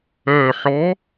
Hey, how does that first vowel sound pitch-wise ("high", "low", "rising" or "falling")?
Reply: low